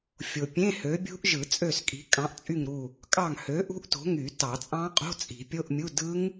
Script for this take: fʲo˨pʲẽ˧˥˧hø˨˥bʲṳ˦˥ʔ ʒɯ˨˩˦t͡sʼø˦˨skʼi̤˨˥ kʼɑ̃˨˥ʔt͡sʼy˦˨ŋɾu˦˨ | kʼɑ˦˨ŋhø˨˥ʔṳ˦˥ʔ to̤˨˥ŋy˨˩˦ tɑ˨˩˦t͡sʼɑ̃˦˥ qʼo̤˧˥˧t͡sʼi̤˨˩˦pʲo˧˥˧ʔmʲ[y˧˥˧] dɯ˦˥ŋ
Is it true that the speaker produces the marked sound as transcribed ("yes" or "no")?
no